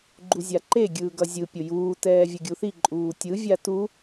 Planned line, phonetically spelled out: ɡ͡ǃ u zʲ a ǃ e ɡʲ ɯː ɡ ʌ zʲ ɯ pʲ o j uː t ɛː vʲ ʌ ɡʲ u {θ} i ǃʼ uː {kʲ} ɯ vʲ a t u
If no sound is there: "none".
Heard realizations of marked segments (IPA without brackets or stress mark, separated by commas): θ, tʲ